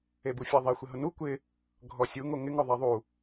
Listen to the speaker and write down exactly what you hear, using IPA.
e b u fʲ a ðˤ e xʷ ɪ ɦ ʊ n u kʷ ɪ | ɡʱ ɔ sʲ u ŋ o ŋ ɪ ŋ ʊ ðˤ ɛ ðˤ u

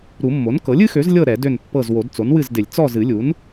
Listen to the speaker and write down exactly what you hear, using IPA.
ɾ u˨˩˦ mː o˩˥ n k ɤ˩˥ lʲ ɨ˩˥ x ø˩˥ z lʲ ɤ˦˨ ɾ ɛ˨˩˦ d ø˦˨ n pː ɤ˦˨ z w o˨˩˦ d t͡s o˩˥ n w ɨ˦˨ z d ɪ˨˩˦ lʲ t͡s ɔ˦˨ z ɨ˨˩˦ lʲ u˩˥ n

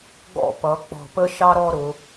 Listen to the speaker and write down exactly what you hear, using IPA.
ɡ ɔ̰˥˧ p ʌ˩˧ k͡p ɔ̤˧˩ p ə˥ ʃ ɑ˥ ɾ ɔ˥˧ ɾ ʊ˩˧

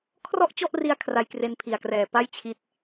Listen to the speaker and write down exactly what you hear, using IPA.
kʰ r ɔ˥˩ ʔ t͡ɕ ɔ˥˩ ʔ r i˧ a̯ kʰ r a˧ j k r e˧ n pʰ i˨˩ a̯ k r ɛː˨˩ p a˥˩ j t͡ɕʰ i˦˥ t̚

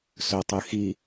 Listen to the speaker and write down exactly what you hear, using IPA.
s ɵ tˤ ɨ x i

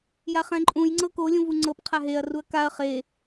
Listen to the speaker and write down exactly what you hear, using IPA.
j a χ ɛ̃ ǃʼ ũ j ŋ͡ǀ ɤ k o lʲ ũ v u ŋ͡ǀ ɤ p qʰ a ɦ e ɐ̯ r u ɐ̯ k a ɐ̯ χ e

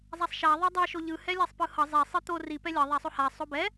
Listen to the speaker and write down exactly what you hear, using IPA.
zˤ a sˤ ʃ a ðˤ o dˤ a ʃ o ʎ ɯ h ɛ lʲ a sˤ p ɯ h ʌ zˤ ɛ sˤ ɯ t̪ o r i p ɛ lʲ ʌ ðˤ a sˤ o h a sˤ o b ɛ

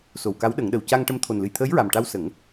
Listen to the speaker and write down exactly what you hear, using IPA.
s o˨˩ w k a˧˥ w ɗ ə˨˩˦ ŋ ɗ ə˨˩ w c a˧ ŋ ʈ ə˧ m t̪ʰ o˨˩ n l ɨ˨˩ j t̪ʰ əː˧˥ j ɹ a˨˩ m ʈ a˧ w s ə˨˩˦ ŋ

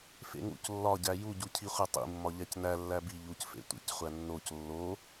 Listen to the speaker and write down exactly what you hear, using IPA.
f ḛ ŋ ṵ c lː ɒ ɟ æ j u ɟ u cʰ i χʷ e tˤ ḭ mː ɒ ʎ æ c n æ lː æ b i ʎ u c f ḛ tʷ ḭ c χʷ æ nː o c lː o

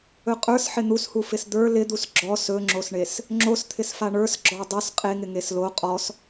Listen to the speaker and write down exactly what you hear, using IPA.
ɵ qʼ ə˞ s ħ ɪ n̪ u s h u f ɪ s d̪ ə˞ l ɪ d̪ u s ɡ͡ǁ ɔ s ɵ ŋ͡ǁ o s ɳ e s | ŋ͡ǁ o s t̪ʰ ɪ s f a ɳ ə˞ s ɡ͡ǁ ɔ dˤ ɵ s qʼ e ŋ ɪ ŋ e s l o qʼ ɔ s

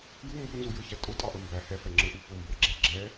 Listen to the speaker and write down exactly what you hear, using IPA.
j u m b u n z u j ə˞ ç æ tʼ ʊ tʼ ɑ ʔ ə m b æ h ɛ f ɛ ŋ͡ǁ ə˞ ʔ u f ʊ m b ə˞ ɡ͡ǁ ɛ ɡ͡ǁ ɛ

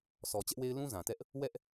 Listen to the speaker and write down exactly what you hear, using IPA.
s ɔ˨ t͡ɕ ɛ˦ ʔ w e˦ ɪ̯ l ũ˦ z ã˨ t ɛ˦ ʔ | w ɛ˦ ʔ

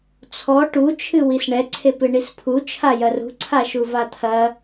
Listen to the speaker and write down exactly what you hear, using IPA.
t͡sʰ ɔ ʈ u t͡ʃʰ ɨ w i s ɳ ɛ ǀʰ e p ɨ ɳ i s pʰ u t͡ʃʰ a j ɐ r ṳ ǀʰ a ʃ u v a t̪ʰ ɐ

